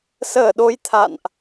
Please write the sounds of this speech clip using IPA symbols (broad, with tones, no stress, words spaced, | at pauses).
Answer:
səː˧˩ɗo˨˦j t̪ʰa̰˧˨nʔ